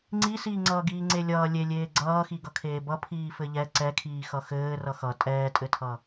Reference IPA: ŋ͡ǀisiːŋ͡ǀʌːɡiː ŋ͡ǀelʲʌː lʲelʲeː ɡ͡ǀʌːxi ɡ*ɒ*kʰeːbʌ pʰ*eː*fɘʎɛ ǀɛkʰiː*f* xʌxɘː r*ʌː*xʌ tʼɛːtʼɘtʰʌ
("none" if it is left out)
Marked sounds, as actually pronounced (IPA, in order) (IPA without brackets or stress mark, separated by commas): ʌ, iː, none, ʌ